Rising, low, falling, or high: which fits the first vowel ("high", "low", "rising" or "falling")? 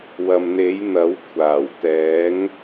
low